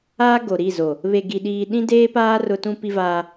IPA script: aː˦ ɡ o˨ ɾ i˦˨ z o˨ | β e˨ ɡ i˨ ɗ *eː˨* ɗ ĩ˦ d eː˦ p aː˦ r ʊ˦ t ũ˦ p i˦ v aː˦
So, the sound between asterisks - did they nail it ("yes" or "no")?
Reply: no